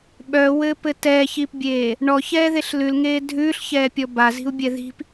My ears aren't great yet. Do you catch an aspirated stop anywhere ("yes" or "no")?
no